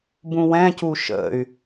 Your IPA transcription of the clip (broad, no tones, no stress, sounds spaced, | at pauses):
b ũ w ɛ̃ c u ʃ ə̰ y̯